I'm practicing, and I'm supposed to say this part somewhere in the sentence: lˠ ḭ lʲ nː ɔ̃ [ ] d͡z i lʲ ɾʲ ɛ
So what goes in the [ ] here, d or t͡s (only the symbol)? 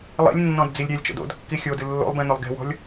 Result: d